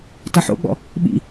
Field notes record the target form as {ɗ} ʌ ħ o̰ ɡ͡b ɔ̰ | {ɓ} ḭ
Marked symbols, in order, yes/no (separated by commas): no, yes